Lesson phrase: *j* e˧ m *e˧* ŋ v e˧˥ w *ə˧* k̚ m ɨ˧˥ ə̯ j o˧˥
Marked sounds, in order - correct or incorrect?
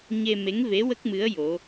incorrect: ɲ, incorrect: e˧˥, incorrect: ə˦˥

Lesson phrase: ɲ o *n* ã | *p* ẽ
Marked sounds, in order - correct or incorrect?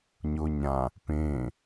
incorrect: ɲ, correct

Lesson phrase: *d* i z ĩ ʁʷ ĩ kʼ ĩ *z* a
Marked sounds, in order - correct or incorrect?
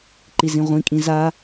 incorrect: ǃ, correct

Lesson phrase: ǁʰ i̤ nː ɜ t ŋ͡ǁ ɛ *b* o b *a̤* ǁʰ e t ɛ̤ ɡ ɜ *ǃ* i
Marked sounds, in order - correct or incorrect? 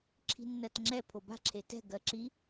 incorrect: pʰ, correct, incorrect: ǁ

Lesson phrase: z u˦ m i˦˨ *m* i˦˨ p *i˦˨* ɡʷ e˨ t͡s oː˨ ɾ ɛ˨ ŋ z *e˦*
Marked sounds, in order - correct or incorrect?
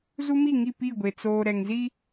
incorrect: ŋ, correct, incorrect: i˦

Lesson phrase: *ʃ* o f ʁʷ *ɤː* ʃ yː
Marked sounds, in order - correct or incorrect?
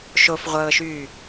correct, correct

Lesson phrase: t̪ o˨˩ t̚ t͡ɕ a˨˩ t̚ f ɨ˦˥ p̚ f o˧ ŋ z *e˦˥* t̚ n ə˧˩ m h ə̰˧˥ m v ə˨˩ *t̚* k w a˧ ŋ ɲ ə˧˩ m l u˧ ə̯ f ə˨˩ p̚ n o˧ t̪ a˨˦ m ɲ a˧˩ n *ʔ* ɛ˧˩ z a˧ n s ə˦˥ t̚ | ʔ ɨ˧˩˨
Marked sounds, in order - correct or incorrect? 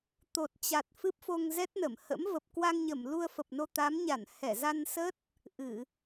incorrect: ɛ˦˥, incorrect: p̚, incorrect: h

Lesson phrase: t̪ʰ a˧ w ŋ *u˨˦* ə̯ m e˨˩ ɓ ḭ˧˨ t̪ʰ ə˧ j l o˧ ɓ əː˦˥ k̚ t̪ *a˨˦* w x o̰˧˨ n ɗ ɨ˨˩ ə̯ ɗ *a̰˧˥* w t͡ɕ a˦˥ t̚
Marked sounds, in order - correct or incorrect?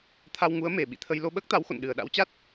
correct, correct, correct

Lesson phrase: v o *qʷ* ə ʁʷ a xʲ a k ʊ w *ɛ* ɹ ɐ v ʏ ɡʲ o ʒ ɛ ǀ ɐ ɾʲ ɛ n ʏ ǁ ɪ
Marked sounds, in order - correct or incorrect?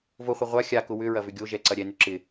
incorrect: χʷ, incorrect: ʏ

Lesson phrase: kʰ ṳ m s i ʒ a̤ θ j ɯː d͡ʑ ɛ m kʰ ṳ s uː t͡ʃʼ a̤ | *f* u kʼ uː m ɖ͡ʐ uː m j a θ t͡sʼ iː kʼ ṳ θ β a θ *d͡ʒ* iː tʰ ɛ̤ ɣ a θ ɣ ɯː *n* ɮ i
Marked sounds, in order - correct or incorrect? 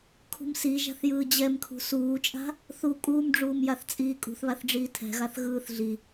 incorrect: θ, incorrect: ɖ͡ʐ, incorrect: θ

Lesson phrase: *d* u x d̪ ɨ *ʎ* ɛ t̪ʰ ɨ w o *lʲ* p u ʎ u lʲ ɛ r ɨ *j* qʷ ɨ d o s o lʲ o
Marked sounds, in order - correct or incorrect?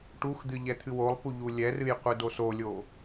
incorrect: ʈ, correct, incorrect: lˠ, correct

